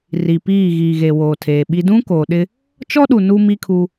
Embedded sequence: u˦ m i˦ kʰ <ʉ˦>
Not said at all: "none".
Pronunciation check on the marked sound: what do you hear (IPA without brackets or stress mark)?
u˦